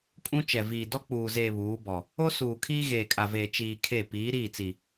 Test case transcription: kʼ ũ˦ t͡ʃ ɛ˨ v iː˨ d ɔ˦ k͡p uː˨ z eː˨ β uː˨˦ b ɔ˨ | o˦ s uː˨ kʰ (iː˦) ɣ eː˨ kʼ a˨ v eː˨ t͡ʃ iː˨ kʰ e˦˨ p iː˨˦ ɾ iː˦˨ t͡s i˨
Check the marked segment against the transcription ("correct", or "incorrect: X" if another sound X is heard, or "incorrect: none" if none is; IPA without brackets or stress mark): correct